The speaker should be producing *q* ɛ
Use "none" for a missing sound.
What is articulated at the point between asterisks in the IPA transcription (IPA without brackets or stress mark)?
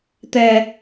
t̪